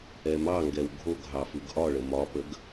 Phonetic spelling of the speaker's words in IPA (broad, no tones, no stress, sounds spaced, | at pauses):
ɛ m ɑ ŋ ɡ ɛ w ɡʱ o ɡ ɦ ɑ f ɯ ɡ ʔ ɒ ɭ ə m ɒ p ə ɡ